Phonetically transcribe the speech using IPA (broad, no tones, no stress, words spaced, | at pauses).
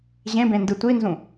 ʑẽbẽ ndɯtʷinzũ